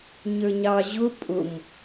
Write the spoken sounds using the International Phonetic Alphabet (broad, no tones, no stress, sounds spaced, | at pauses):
ɲ ə˞ ɲ ɑ ʑ ʊ pʼ ʊ m